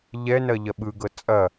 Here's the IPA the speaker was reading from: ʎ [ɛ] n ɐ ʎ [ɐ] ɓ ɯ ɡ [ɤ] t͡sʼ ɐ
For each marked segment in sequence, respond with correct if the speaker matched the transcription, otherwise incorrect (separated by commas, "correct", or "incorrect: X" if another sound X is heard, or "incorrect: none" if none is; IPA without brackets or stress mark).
correct, correct, correct